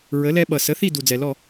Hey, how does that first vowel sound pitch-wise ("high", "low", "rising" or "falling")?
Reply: rising